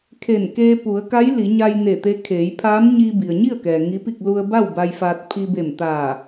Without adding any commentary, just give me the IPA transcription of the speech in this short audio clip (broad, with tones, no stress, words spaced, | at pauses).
kʰe˧˩n keː˧pu˩˧ə̯ka˧˥j li˩˧ɲa˧j ne˧˩t̪e˧kʰeː˩˧jpʰaː˧˥m ɲiː˧bi˩ə̯ɲi˥˨ə̯kɛː˩ ŋi˧˥pi˥˨k̚ lu˧ə̯ba˥˨w ba˧jfaː˧t̚ pʰi˧be˧˩mt̪aː˧˩